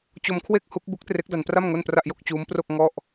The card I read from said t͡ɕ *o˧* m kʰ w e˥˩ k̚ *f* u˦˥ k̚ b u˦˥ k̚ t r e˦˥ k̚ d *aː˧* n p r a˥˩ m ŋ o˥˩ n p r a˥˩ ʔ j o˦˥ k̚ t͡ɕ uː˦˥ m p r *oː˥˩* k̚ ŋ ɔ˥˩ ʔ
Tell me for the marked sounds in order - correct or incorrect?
correct, incorrect, incorrect, incorrect

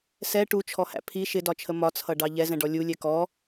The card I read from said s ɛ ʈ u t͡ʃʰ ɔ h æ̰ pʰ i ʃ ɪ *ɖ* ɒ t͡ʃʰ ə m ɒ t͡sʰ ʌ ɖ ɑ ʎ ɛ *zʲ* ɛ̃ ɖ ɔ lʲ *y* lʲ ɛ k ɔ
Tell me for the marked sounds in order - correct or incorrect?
incorrect, incorrect, incorrect

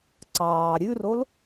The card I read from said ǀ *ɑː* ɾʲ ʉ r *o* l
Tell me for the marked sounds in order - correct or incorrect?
correct, correct

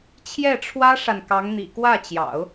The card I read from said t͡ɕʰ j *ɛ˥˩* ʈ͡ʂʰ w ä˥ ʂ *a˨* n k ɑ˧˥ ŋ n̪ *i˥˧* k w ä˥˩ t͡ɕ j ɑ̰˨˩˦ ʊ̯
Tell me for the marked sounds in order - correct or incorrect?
correct, correct, incorrect

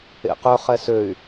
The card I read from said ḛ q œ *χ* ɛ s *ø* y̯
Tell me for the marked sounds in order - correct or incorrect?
correct, correct

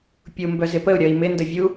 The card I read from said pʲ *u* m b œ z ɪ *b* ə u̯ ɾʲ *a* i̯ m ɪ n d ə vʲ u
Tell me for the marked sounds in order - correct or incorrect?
correct, incorrect, incorrect

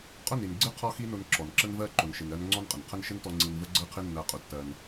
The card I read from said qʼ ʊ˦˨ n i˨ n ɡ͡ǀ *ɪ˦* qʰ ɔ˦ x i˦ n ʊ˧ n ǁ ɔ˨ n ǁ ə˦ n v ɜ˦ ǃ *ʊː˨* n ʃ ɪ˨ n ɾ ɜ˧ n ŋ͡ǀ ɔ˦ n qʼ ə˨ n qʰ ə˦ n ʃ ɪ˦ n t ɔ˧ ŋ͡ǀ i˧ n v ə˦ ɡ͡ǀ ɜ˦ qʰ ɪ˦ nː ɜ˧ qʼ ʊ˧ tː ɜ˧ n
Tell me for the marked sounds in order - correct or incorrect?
correct, incorrect

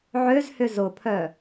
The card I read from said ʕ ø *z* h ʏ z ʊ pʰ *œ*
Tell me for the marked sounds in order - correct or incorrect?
correct, correct

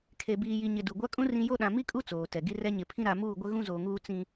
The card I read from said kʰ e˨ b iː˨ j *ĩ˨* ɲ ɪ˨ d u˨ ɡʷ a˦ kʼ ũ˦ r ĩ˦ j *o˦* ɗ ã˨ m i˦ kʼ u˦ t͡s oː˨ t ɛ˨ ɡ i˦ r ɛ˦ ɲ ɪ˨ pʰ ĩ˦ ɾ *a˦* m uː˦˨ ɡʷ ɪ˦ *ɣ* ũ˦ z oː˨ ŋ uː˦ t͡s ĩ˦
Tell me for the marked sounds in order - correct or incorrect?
incorrect, correct, incorrect, correct

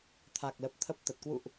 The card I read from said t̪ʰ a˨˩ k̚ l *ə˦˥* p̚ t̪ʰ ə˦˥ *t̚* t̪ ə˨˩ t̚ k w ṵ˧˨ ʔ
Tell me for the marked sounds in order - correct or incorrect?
incorrect, incorrect

